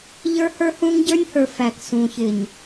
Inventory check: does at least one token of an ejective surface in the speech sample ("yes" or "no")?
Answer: no